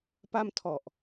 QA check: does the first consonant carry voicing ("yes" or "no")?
no